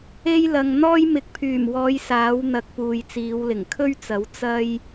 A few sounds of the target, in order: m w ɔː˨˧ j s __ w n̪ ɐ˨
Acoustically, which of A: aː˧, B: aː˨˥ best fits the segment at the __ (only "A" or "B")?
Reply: B